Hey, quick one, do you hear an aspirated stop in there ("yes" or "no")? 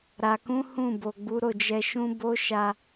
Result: no